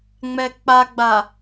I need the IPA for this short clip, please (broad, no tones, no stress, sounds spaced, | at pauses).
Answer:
ŋ͡m ɛ k͡p a ɡ͡b a